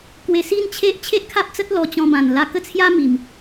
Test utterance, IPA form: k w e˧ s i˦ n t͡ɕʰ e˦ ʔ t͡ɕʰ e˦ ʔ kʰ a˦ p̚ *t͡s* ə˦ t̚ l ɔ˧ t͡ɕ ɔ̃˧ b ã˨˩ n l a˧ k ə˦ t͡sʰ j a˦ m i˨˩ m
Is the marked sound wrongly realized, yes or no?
no